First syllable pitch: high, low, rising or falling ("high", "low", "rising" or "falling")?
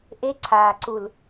high